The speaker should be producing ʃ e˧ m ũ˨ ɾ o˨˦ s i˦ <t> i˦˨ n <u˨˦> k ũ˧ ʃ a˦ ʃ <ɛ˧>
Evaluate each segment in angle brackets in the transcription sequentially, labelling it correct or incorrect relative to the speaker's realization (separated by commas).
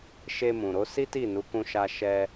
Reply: correct, correct, correct